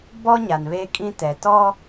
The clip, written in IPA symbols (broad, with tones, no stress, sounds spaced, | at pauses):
b ɔ˦ ɲ a˨ n β eː˦ kʼ ĩ˦ t ɛ˨ t ɔ˦